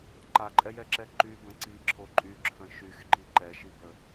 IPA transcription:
ǃ a ǃʼ ɛ j ɛ ǁ ɛ ǃ y b ə̃ ǀ i ǁʰ o ǃʼ y ǁʰ ə̃ ʃ y x ǃ i ǃ ɛ ʃ i b ə

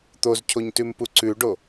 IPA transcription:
t̪ o z cʰ o ɲ t ʉ m p u ǀ ʉ ɖ o

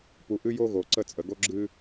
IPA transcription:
p u˨ ʔ ɨ˦ j o˦ ɣ o˨ ǀ ə˦˨ t͡sʼ ə˨ ɡ o˦ ɡ͡ǁ ɨ˦

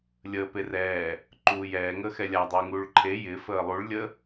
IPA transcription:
lʲ əː p e r ɛː | ǃ uː j ɛː ŋ əː x ɛ lʲ a dˤ ɪː ŋ uː ɭ ǃʰ e j ɪː f əː lˠ u ɭ lʲ ə

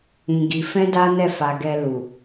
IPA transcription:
ĩ˧ ɡ i˧ f ɛ̃˦ d a˦ n ɛ˦˨ f a˧ ɡ ɛ˧ l u˨

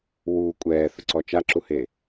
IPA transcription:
w u kʷʼ ɛː θ ʊ ǀ ɔ t͡ʃ a ǁ u h e

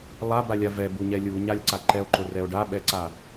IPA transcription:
lˠ a b a lʲ a v ɛ b u ɲ ɛ lʲ u ɲ a lʲ ǀ a ǃ ɛ o̯ ǃ ʊ r ɛ o̯ ɖ a ɓ ɛ ǀ a

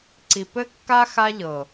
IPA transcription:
ǀ i˨ p ɘ˦ kː a˦ x a˦ ʎ ɤ˨

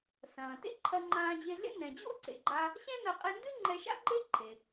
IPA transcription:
s ɐ̃ː˩ t ḛ˥ ǃʰ ɐ˧ ŋ͡ǃ ãː˧ d͡ʑ e˧ ɮ ḛ˥ n ɛ̃˩ d͡ʑ o̰˥ ǀ ḛ˩ ɡ͡ǃ a˧ | ɕ ɛ̃˥ n ɐ˧ qʼ e˧ n d ɨ˥ ŋ͡ǃ ɛ˧ ʃ a̰˥ ɡ͡ǃ e˥ ǃʰ e˩

